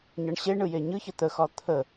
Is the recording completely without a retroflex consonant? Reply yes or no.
no